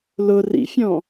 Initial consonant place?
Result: alveolar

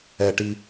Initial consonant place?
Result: retroflex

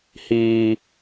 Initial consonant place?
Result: glottal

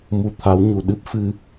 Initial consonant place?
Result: labial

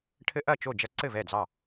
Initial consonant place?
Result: retroflex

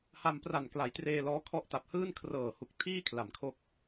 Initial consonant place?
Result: glottal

